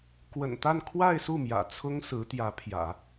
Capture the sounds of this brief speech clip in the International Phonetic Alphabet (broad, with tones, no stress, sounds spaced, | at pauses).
k w ə̰˨˩ n t̪ a˥˧ n kʰ w a˥˧ ɪ̯ s u˥˩ m j ä̰˨˩ t͡sʰ ʊ˥ ŋ s ɹ̩˧˥ t̪ j ä˧˥ pʰ j ä̰˨˩˦